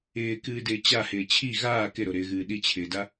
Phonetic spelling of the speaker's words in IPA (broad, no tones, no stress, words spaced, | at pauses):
ɪːkɨːdɪː t͡ɕahɪː t͡ɕʰi ɣaː kɪɾoɾɪːɣɨː ɗit͡ɕʰɪːda